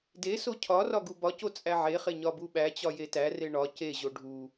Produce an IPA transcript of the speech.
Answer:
d e s o cʰ ɒ r ɒ ɡ u b ɒ c o t͡sʼ æ ʕ e χ e ɲ ɒ b u ɓ æ t͡ɕ ɒ j e t æ r e ɳ ɒ c e ʑ o ɖʱ u

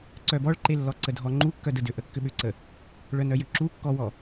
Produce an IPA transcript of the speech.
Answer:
ǀ œ b ɔ ɭ ǃ e lː ɔ ǀ ə dʱ ɔ ŋ͡ǃ u kː œ d ə d ʏ ʔ ə kː ʏ ɓ ʏ ǀ ə | ɭ œ n œ j ʏ ǁ u kː ɔ w ɔ

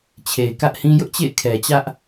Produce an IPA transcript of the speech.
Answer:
t͡ɕʰ e˨ ɪ̯ k ä˦ ʔ h ĩ˦ j ʊ˦ ʔ t͡ɕ ḛ˦˨ ɪ̯ kʰ ɛ˨ t͡ɕ ä˦ ʔ

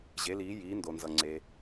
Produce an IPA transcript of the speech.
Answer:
ʑ e˨˥ l iː˨˥ j iː˨˥ n d o˨ n z ʌ˨ ŋ͡ǀ e˨

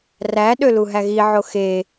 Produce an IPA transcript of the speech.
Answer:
r æ ɗ ø l u ɦ æ ɣ i ʕ o x e

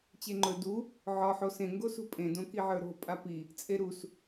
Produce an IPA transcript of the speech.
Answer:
t͡ɕ e ŋ͡ǃ ɵ d u | ʕ ɒ ħ o s ẽ ŋ ɡ o s ṳ pʼ ẽ d õ k i ʕ ə˞ ɾ o̤ pʼ a p i | t͡sʼ e ɾ u s

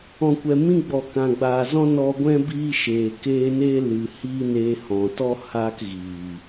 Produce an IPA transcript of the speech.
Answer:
ɔ̃˨ kʷ ɛ˨ m ĩ˦ ɡ͡b ɔ˨ k ã˨ ɡ͡b aː˨ z ɔ̃˦ n ɔ˧ ɡʷ ɛ̃˦ b iː˦ ʃ eː˨ k eː˦ n eː˦ l ɨ˨ h iː˦ n eː˧ h ɔ̃˨ t ɔ˦ h aː˦ k ɣ iː˨

